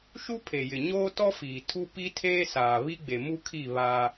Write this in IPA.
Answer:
ʃu˦pʰe˨ jɪ˨ɲoː˦tɔ˦fiː˨ tʰu˦ pi˦tʰeː˦saː˨ βi˦ɡ͡be˨mu˦kʰi˦˨ βaː˦

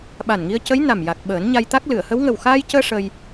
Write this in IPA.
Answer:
ɓa˨˩nŋi˧ə̯cə˧˥j na˨˩m ja˨˩k̚ ɓəː˨˩˦nɲa˧jt̪a˦˥k̚ lɨ˨˩˨ə̯hə˧˥w ŋə˨˩wxaː˧jcəː˧ ʂə˧j

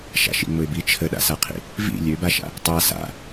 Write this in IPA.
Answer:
ʃa̰ʃḭŋ͡mʊɪ̯bi t͡ʃʰəɗa̰saqʰḭ | vḭ lʲøbaʃa̰ | tˤa sa̰

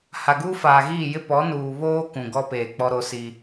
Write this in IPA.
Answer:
ha˨ɡuː˦faː˨ɣiː˦˨ jɪ˦pɔ˨˦nuː˨ βoː˦ kũ˨ɡɔ˦peː˨ k͡pɔ˦ɾo˦si˦

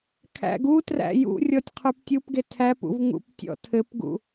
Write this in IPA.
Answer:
kʰæ̰ɡutræ̰ jṵ rʲɔtʲqʰʉptʲupɡe tʰæpṵv ŋṵptʲɔ̰tʰɘpɡṵ

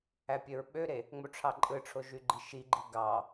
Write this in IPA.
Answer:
æpʲøɹɓøɾe | ŋ͡moʈ͡ʂʰɑǃʼɯʈ͡ʂʰo ʒyɡ͡ǃiʃiɡ͡ǃi ɡɑ

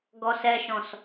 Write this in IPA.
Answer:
ɡɔsɛʃɔ̃s

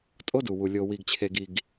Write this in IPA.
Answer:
tʼo˦du˨wu˨ lʲo˨wi˨ɡt͡ɕʰe˨ɡi˨ɡ

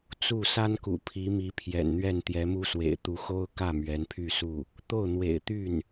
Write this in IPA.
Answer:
t͡su˥˩ sa˥nkṵ˨˩ pʰi˧˥mi˧˥ pʰjɛ̰˨˩nn̪ɥɛ˥˩n t̪jɛ˧˥mu˥swḛ˨˩ɪ̯ t̪u˧˥xo˥ʊ̯ kä˥˩ mɥɛ˧˥npʰy˥˧su˥˩ | t̪o˥˩ʊ̯n̪wḛ˨˩ɪ̯t̪y˥˩n

